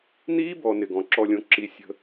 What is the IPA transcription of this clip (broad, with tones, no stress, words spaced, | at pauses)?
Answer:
niː˦bɔ˨ nɪ˨ɡɔ̃˨ǁɔ˦˨lʲõ˦ ǁi˦ sʲə̤˦